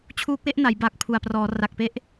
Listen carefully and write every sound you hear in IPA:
t͡ɕʰ uː˦˥ k̚ w e˥˩ ʔ n a˩˦ j b a˨˩ k̚ pʰ u˨˩ a̯ p r ɔː˩˦ r a˨˩ k̚ p e˥˩ ʔ

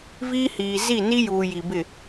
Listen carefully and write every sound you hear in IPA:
v iː˦ h iː˨ z i˦˨ n i˦ j uː˨ j i˨ b ɪ˦˨

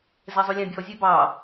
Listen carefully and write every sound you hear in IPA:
z ɛ zˤ ʉ lʲ ã bʲ ɔ zʲ ɛ b ɑ

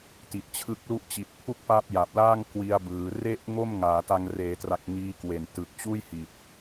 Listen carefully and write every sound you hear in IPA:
t i˨˩ t̚ t͡ɕʰ ɯ˦˥ k̚ l u˥˩ ʔ t͡ɕ i˨˩ t̚ pʰ u˥˩ k̚ p a˦˥ p̚ j a˨˩ p̚ l aː˥˩ ŋ k w i˧ a̯ b ɯː˩˦ r e˥˩ ʔ ŋ o˥˩ m ŋ aː˩˦ t a˧ ŋ r eː˩˦ t r a˨˩ k̚ ŋ iː˦˥ k w e˨˩ n t ɯ˨˩ k̚ t͡ɕ uː˥˩ j h i˨˩ t̚

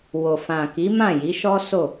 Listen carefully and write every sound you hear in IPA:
w o˨ f ã˨ k i˨˦ m ã˦˨ j i˨˦ ʃ ɔ˦ s o˦˨

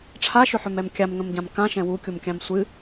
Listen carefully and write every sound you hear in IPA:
ʈ͡ʂʰ a ʃ ʏ ħ ʏ m ɛ m kʲ a m ŋ ə̃ m ɟ ã m k ã ʃ ɛ̃ w u kʲ u m kʲ ã m sʷ ɨ

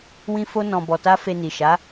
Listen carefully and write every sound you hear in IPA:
w ĩ˦ f o˦ n ɔ̃˧ b ɔ˧ t a˦ f e˧ n i˨ ʃ a˨˦

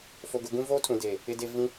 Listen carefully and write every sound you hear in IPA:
f o˨ ɡ ʊ˨ ɡ ũ˦ v oː˦ tʰ ũ˨ d eː˨ | ɪ˨ d e˨ v ĩ˦

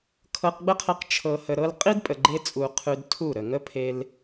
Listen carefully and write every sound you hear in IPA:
kʰ ɤ˧ q ɡ͡b ə˦ qʰ ə˧ q t͡ʃʰ ɤ˧ h ə˧ ɾ ɤ˦ l qʼ i˦ d pʼ ə˨ ɡ͡ǃ e˧ t͡sʼ u˨ qʰ ʉ˧ d tʰ u˦˨ ɾ ə˨ ŋ ə˦ pʰ e˧ l

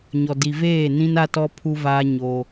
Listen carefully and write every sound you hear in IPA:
ɲ ɔ˨ d i˨ v eː˦˨ n ĩ˦ n a˦ t ɔ˦ pʰ u˦ v aː˦ ɲ o˦

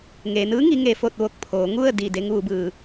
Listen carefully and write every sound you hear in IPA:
ŋ eː˩ n ɯː˧˥ ŋ i˩˧ ŋ e˩ f o˧˩ t̚ ʋ o˧˩ k̚ pʰ oː˩˧ ŋ u˥˨ ə̯ d i˧˩ d e˧ ŋ ʋ u˩˧ b ɯː˩

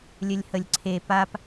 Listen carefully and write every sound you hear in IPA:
lʲ ə lʲ h ə lʲ ǀʰ e p a p

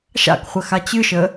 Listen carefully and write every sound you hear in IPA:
ʃ a̰ k χʷ ə x a t͡ɕ ɨ ʃ ə

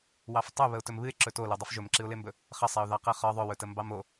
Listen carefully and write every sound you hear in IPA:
w ɑ f tˤ ɵ β ə ʊ̯ t ɵ m β ɨ ɪ̯ ǁ ɵ t o l o dˤ ɨ f ʒ ɵ m ǁ ɨ ʊ̯ l e m b ɵ | χ ə sˤ e ʊ̯ ð ɑ q ɨ χ ɒ ðˤ ɵ w ɵ t ə m b ɑ m o

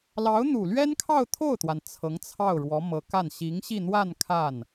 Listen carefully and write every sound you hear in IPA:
l ɑ˧˥ ʊ̯ n̪ u˨˩ l ɥ ɛ˥ n kʰ ɑ˥˧ ʊ̯ t̪ʰ o˥˩ ʊ̯ t̪ w a˩ n t͡sʰ ɤ˧˥ ŋ t͡sʰ ɑ˥˩ ʊ̯ ɻ w ɔ˧˥ m ɤ˧˥ k a˥˩ n ɕ i˧˥ ŋ ɕ i˥˧ n̪ w a˥˧ n kʰ a˥˩ n

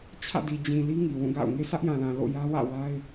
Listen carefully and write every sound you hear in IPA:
t͡ɕʰ ä̰˦˨ d i˨ d͡ʑ ĩ˨ l i˦ ŋ i˨ w ũ˦˨ ɡ a̰˦˨ ʊ̯ ŋ e˦ sʰ ä˦ ʔ j ã˨ l ã˨ l o̰˦˨ j ä˦ w ä̰˦˨ w a˦ ɪ̯

